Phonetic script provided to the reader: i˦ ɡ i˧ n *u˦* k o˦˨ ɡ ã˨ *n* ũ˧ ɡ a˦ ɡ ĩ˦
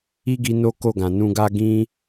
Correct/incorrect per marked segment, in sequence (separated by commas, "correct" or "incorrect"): incorrect, correct